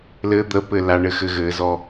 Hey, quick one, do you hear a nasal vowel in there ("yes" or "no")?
no